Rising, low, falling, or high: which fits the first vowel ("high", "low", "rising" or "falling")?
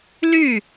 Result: falling